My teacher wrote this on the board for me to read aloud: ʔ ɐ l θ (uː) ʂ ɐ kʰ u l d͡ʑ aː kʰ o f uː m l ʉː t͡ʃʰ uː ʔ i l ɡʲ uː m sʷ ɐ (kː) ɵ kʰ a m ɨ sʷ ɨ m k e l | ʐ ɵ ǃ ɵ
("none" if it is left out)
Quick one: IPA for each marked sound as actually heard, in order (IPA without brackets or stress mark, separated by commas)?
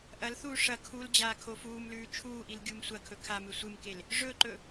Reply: uː, kʰ